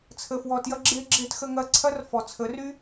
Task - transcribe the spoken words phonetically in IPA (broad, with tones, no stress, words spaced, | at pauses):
t͡sʰə˨fwɔ˨tjɐ˧ ɡ͡ǁe˧ɡ͡ǁe˧txə˧ ŋɐ˧ǀʰɐ˦r fɔ˨t͡sʰə˨˦ry˦